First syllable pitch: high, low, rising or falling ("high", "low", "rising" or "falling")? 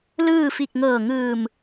falling